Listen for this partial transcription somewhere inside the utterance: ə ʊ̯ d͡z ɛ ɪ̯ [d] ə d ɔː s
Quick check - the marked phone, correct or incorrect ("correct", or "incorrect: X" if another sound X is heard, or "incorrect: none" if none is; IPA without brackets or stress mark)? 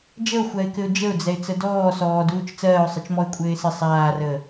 incorrect: t͡s